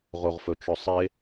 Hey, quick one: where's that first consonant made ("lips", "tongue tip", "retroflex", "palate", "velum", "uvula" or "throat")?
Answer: uvula